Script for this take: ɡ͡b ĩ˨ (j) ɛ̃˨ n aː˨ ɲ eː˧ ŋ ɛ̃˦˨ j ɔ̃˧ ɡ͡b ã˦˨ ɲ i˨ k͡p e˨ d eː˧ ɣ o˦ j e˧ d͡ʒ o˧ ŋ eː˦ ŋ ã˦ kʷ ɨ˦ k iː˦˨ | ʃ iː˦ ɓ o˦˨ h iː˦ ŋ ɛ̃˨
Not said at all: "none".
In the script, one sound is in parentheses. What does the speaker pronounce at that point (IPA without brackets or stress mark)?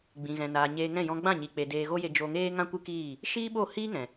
ɣ